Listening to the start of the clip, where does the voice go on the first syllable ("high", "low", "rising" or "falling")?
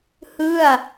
falling